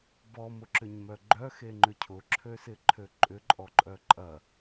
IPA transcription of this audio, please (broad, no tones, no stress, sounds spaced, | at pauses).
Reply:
b ɔ m ʊ ǁ ʏ ɲ m œ ɡ͡ǃ œ x e ŋ͡ǃ ʏ cʰ ʊ ǁʰ ø s ɪ ǃʰ ø ǃʼ ʏ ǃʼ ɔ ǃʼ œ ǃʼ ɐ